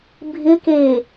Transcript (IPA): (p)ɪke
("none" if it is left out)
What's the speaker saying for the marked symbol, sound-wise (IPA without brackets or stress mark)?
bʱ